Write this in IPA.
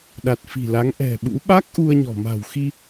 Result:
ɗa˨˩t̚fi̤˨˩la˨˦ŋ ʔɛ̤˨˩ɓṵ˧˥ ɓa˦˥k̚ ʔu˧ə̯ɲɔ̤˨˩ ma̤˨˩wxi˧

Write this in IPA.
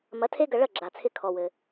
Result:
mɐ˩˥tʰe˥ɡɐ˧ ɭɐ˥˩ɡ͡ǁa˩t͡sʰɪ˧ kʰɔ˩wɘ˩

